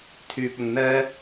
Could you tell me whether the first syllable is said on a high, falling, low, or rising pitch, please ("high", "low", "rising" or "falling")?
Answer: low